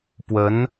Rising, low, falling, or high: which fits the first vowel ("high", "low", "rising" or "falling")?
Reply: rising